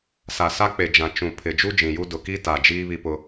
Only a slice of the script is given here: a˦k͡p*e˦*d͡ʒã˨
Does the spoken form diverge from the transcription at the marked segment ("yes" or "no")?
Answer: yes